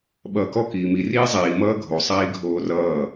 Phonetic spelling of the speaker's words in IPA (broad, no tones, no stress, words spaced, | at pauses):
ɓʌːkɔ kiːmi riːzˤiː mʌːɡʱo sˤiːɡʱoːrʌː